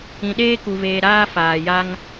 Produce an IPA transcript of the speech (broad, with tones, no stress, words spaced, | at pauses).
ĩ˧ɗeː˦ku˧veː˧ ɾaː˦ faː˧ja˦ŋ